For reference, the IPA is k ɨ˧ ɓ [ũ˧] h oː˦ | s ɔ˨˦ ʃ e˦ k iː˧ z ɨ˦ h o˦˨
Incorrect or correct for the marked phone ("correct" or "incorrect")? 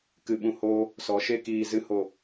correct